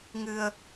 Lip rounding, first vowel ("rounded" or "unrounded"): unrounded